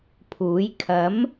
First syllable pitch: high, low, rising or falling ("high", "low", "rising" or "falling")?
rising